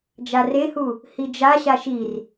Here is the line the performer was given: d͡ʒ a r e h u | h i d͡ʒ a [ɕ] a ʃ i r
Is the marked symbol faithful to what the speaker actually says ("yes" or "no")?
yes